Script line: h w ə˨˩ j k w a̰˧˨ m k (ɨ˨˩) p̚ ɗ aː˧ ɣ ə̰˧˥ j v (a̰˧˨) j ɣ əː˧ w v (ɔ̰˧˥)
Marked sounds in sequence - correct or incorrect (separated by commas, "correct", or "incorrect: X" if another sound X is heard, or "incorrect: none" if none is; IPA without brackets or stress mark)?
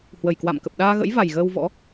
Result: incorrect: ə˨˩, incorrect: a˨˩, correct